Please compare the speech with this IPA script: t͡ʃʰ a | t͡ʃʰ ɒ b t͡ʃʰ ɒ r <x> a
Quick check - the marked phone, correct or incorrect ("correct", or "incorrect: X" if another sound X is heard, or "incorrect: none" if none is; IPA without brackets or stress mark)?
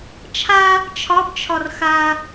correct